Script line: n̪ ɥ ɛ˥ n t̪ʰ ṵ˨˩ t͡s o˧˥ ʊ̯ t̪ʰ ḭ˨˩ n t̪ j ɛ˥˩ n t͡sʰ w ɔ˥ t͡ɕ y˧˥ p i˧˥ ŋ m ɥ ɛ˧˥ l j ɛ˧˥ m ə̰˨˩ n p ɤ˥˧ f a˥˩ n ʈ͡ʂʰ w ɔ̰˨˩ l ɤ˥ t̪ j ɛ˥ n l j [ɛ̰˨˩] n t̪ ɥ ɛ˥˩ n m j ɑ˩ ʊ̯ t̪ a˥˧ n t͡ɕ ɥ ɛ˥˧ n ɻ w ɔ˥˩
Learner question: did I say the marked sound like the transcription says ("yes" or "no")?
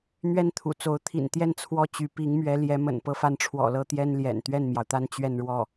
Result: yes